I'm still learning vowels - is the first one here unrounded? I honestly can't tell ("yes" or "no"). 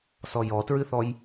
no